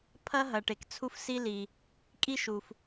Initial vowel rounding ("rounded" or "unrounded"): unrounded